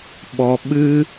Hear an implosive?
yes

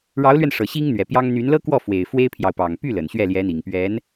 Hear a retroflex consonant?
yes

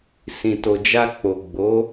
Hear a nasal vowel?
yes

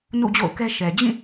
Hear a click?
no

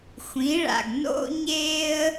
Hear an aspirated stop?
no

